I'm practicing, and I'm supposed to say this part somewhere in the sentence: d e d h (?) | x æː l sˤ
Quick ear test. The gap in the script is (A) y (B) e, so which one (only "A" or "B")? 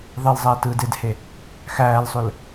B